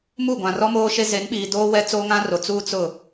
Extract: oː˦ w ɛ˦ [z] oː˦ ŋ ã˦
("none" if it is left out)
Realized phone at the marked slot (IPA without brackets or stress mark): t͡s